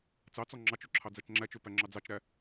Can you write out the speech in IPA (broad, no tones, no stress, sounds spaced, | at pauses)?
t͡s ɑ t͡s ɔ ŋ͡ǁ ɑ t͡ʃ ø ǁʰ ɑ d͡z æ t͡ʃ ŋ͡ǁ æ t͡ʃ ø p æ ŋ͡ǁ ɑ d͡z ɑ t͡ʃ ɾ æ